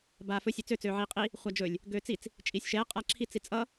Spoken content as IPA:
b aː f ɵ sʲ ɵ t͡s ø t͡s øː ʕ iː qʼ i | χʷ a d͡ʒ ɵ lʲ | ɡ øː t͡s i t͡s | t͡ʃʼ iː sʲ ʃ ɛː qʼ a ǁʰ i t͡s i t͡sʼ ʌ

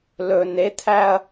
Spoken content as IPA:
l ɵ n e t̪ʰ æ ɐ̯

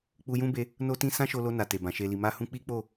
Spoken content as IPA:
k͡p u˧ j ũ˦ b e˧ | n o˦ t ĩ˦ s ã˦ ʃ o˧ l o˧ n a˨ t e˨ b ã˨ ʃ e˨ l i˨ m a˧ h ũ˧ k͡p i˦ k͡p o˦˨

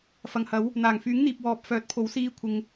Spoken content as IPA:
f ɐ˨ ŋ h ɐ˨˥ w | n̪ aː˨˩ ŋ f yː˨˥ ŋ n̪ iː˨ p̚ w ɔː˨ p̚ f œː˨˥ t̚ pʰ o˨˥ w s iː˧ kʷʰ ɪ˨ ŋ

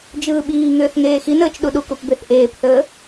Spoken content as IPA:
d͡ʒ ɯː ɓ iː ŋ ʏː θ ŋ eː x i n əː t͡ʃ ɗ u ɗ u k u p b e θ ʔ eː p θ əː

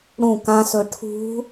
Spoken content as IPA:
ɽ ũ k ã s ɵ ʈʰ ṳ

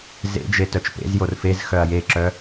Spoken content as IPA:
z ḛ d͡ʒ e t œ t͡ʃ p ḛ z j o r f e z x œ ɐ̯ j e ǁ œ

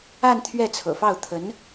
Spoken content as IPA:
a˥˧ n t̪ʰ ɥ ɛ˥˩ t͡sʰ ɤ̰˨˩ f ɑ˥˩ ʊ̯ t̪ʰ ə˧˥ n

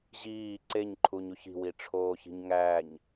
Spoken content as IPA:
ʑ iː ǀ e ɲ ǃʰ u ɲ u ç i̤ w i ʈ͡ʂʰ oː ç i̤ ɲ ŋ æː ɲ

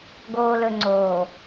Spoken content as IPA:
ɡ oː˨ l ɵ˨ ŋ͡ǀ oː˨

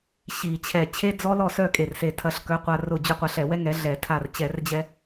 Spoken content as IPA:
ɕ i˧˩˧ t͡ɕʰ ɛ˧˩ t͡ɕʰ e˦˥ d͡z ɔ˦˥ l ɔ˥˨ s œ˥˨ kʼ e˧˩ r s e˧˩ tʰ ɐ˧ ɬ k œ˨˥ qʷ a˧ r ʊ˧˩ d͡ʑ ʏ˧ qʷ a˧ ɬ ɛ˧˩˧ w ɛ˦˥ ŋ ɛ˨˥ ɮ ɛ˧˩˧ tʰ a˧˩ r t͡ɕ ɛ˧˩˧ r d͡ʑ ɛ˧

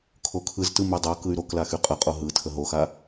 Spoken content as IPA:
kʰ o kʰ ɯ z t ɯ m y dˤ o k ɯ y̯ ɾ o k l a x y qʼ ə qʼ o ɦ ɯ tʰ ə ɦ o x a

